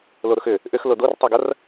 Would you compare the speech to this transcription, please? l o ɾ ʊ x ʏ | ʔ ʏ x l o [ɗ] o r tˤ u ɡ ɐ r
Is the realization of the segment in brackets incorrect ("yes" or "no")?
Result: yes